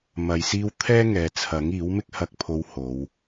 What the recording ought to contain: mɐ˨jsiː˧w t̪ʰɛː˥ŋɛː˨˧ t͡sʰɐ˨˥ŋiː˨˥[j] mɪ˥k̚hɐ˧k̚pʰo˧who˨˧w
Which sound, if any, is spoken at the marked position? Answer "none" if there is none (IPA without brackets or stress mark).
w